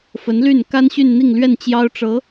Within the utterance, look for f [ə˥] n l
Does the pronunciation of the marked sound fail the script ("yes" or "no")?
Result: yes